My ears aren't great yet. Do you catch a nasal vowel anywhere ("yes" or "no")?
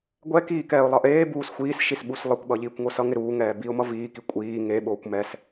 no